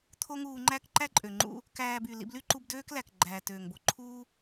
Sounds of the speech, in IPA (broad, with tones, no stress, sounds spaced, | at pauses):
t̪ʰ o˥ ŋ uː˧ ŋ͡ǃ æ˥ k ǃ æ˥ ǃʼ ø˩ ŋ͡ǃ ṵ˧ | k æː˧ b y˩ l ḭ˧ b l y˥ ǃ u˧ b d øː˥ k l æ˩ k ɡ͡ǃ æː˩ t øː˩ ŋ b o˩ ǃʰ uː˥